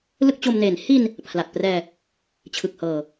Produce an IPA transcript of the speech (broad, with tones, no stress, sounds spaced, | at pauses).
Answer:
l ɯ˥˩ k̚ t͡ɕ o˧ m n e˩˦ n h i˧ n | pʰ l a˨˩ t̚ p r ɛː˧ | t͡ɕʰ ɯ˨˩ k̚ h ɤː˨˩